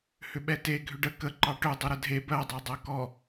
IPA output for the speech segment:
h ʏ ɓ ɛ t e ɡʱ ʏ ɖ ə k ə ǃ ɑ ʈ ø dˤ ʏ ɾ ə dʱ e b ɜ dˤ ɑ dˤ ɜ k ɔ

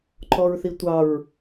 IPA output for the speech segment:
ǃ ɔ ɹ θ i tʷ ɑ ɹ

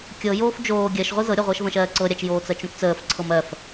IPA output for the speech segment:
kʲ ɤ j oː f d͡ʒ oː ɡʲ ɜ ʃ ʁʷ i z ɤ ɾʲ ɤ ʁʷ əː ʃ v ə̃ ʃ ɜː ǀ ɤ ɾʲ a t͡ʃ j oː t͡s ɜ t͡ʃ ũ t t͡s əː f ǀʰ ɤ m ɜ f

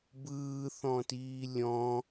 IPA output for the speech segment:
b ɯː θ ɔ̃ t iː lʲ ɔ̃

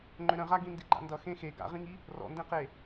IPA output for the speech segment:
ŋ͡ǃ ʏ ɾ ə̃ ʁ a ɡ ĩ n d i ɡ͡ǃ a̰ n d ʌ x ẽ x e ɡ a̰ ʁ ĩ ŋ i | r ɔ̰ n d ẽ q e

